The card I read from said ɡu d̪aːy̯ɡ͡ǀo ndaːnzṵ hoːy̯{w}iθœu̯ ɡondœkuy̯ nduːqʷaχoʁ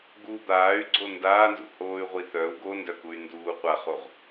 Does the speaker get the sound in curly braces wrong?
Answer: yes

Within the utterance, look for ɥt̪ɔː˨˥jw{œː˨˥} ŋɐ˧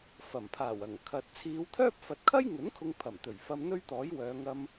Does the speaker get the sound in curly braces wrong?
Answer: yes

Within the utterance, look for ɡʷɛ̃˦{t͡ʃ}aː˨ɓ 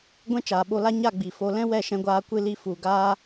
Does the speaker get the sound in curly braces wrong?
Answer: no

